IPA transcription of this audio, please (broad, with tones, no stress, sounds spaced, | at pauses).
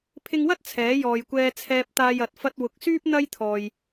pʰ ɪ˧ ŋ w ɐ˥ t̚ t͡sʰ ɛː˨˥ j ɔː˨ j kʷ ɛː˧ t͡sʰ ɛː˧ p̚ t̪ aː˧ j ɐ˨ t̚ f ɐ˧ t̚ w ʊ˨ k̚ s yː˥ p̚ n̪ ɐ˥ j t̪ʰ ɔː˨ j